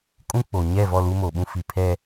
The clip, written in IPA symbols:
kʼ ũ˦ k͡p o˨ ɲ ɛ˦˨ v ɔ˦˨ l u˦ m o˨ ɓ ũ˦ f i˨ pʰ ɛ˨

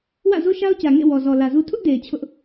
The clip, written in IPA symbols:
w ä̰˦˨ z o˦ ʃ a˦ ʊ̯ t͡ɕ ä˨ ŋ ḛ˦˨ w ɔ˨ z ɔ˨ l ä˨ z u˦ tʰ ʊ˦ ʔ d e˨ ɪ̯ t͡ɕʰ ʊ˦ ʔ

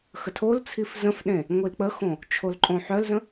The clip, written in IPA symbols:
x ə tʰ o l t͡sʰ i f z ə̃ f ɗ ẽ | ŋʷ i l k͡p ə x õ | t͡ʃʰ o l ǃʼ õ ħ œ l z ə̃

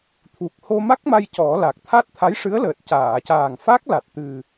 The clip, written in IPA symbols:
t̪ʰ u˨˩ k̚ h o˧ m a˦˥ k̚ m a˧ j c ɔ˨˩˦ l a˨˩ k̚ t̪ʰ a˦˥ t̚ t̪ʰ a˧˥ j ʂ ɨ˧˥ ə̯ l əː˨˩ t̚ c aː˨˩˨ c aː˨˩ ŋ f a˦˥ k̚ l a˨˩ t̚ t̪ ɨ˨˩

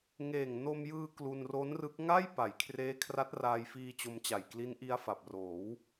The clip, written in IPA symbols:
ŋ eː˨˩ ŋ n o˧ m j ɯː˧ k l u˧ n r o˦˥ n r ɯ˦˥ k̚ ŋ a˥˩ j p a˩˦ j kʰ r eː˦˥ kʰ r a˦˥ t̚ r aː˧ j f iː˧ t͡ɕ o˧ m t͡ɕ a˨˩ j k l i˦˥ n ʔ i˦˥ a̯ f a˨˩ p̚ r oː˩˦ w

